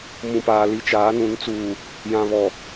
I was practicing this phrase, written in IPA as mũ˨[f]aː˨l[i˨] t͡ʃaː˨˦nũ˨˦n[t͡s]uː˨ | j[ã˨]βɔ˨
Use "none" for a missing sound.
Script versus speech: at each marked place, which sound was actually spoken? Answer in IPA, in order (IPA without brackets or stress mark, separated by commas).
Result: p, i˨, t͡s, ã˨